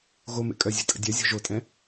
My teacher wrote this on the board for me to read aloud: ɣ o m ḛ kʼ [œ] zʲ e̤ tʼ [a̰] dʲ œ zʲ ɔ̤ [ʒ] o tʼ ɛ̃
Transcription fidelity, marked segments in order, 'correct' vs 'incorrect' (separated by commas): correct, incorrect, correct